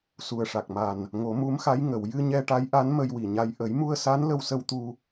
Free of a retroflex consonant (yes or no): no